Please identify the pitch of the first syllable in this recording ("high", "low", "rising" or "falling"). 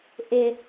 low